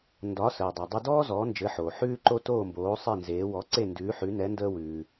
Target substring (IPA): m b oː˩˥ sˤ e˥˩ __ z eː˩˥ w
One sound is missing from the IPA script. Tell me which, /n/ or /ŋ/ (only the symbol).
n